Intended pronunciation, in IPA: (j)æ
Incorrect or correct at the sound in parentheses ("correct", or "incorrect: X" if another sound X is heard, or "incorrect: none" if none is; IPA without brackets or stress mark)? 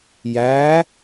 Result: correct